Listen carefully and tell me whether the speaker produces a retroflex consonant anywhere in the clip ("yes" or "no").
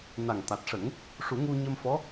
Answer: yes